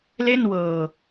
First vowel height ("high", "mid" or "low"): mid